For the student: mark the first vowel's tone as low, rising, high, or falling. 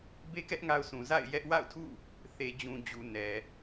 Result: high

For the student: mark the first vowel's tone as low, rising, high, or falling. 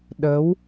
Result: rising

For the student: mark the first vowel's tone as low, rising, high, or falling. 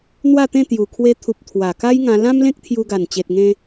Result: falling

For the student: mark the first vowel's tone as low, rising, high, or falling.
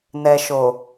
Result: low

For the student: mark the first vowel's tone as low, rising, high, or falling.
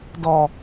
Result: low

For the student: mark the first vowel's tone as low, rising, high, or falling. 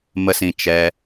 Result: low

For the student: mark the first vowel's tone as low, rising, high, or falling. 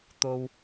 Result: low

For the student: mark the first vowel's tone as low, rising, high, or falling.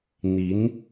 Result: rising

